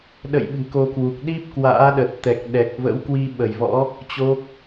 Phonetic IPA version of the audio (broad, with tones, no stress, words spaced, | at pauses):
ɗə̰˧˨j ɓɨ̤˨˩ko˧kwu˨˩k̚ ɗi˦˥p̚kwa̰ː˧˥ɗə˨˩t̚t̪ɛ˨˩k̚ ɗɛ˨˩k̚və̰˧˥wkwi˧ ɓə˧˩jvɔ̰˧˥ | t͡ɕo˦˥k̚